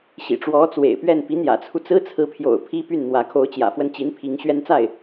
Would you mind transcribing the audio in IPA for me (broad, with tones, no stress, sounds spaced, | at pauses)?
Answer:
ɕ ḭ˨˩ ʈ͡ʂ w ɔ˧˥ t͡s w ḛ˨˩ ɪ̯ p ɥ ɛ˥˩ n p i˧˥ n̪ j ä̰˨˩ t͡sʰ u˦ t͡s ɹ̩˥ t͡sʰ ɹ̩˧˥ pʰ j o̰˨˩ ʊ̯ pʰ i˥ p y˥˩ n n̪ w ä˧˥ kʰ o˧˥ ʊ̯ t͡ɕ j ä̰˨˩ f w ə˥˩ n t͡ɕ i˧˥ n pʰ i˧˥ ŋ ɕ ɥ ɛ˥ n t͡s a˥˩ ɪ̯